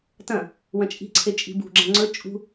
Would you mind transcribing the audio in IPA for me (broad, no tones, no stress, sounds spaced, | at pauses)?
t ɐ̃ | w ɐ̃ t͡ʃʼ i̤ ǀʰ e t͡ʃʼ i̤ b ṳ ɡ͡ǁ ɐ̃ ŋ͡ǀ ɵ t͡ʃʼ ṳ